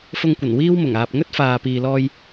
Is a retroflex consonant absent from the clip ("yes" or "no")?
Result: yes